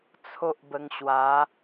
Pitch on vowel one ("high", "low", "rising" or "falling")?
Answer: high